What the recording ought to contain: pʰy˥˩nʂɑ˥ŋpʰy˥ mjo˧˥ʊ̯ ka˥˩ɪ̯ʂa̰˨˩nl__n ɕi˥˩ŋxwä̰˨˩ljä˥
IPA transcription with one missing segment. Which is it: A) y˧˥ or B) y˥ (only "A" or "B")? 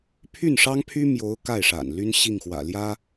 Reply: B